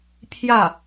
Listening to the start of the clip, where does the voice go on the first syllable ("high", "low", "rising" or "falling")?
falling